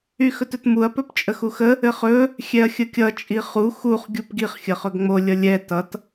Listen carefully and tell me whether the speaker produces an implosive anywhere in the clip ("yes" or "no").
no